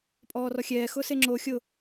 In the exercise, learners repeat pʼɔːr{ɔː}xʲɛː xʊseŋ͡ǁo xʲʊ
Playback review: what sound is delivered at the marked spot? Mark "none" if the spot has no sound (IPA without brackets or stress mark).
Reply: ɔ